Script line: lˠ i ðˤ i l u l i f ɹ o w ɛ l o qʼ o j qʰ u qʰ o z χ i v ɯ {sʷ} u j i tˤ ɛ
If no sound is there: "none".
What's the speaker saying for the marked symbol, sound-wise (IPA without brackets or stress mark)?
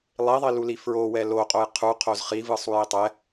sˤ